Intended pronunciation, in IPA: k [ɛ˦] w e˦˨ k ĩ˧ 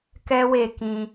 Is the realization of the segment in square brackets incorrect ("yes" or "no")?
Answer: no